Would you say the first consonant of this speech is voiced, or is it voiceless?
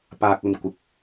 voiceless